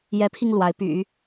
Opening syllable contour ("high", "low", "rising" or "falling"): rising